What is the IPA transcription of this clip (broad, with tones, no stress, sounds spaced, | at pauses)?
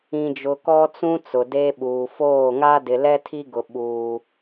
ĩ˨ d͡ʒ ʊ˨ k ɔ˦ t͡s ũ˦ t͡s ʊ˨ d e˦ ɓ uː˨ f oː˦˨ ŋ a˦ d ɪ˨ l ɛ˦ tʰ i˦ ɡ ʊ˦ ɓ uː˦